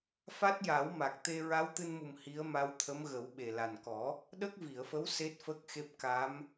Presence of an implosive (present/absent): present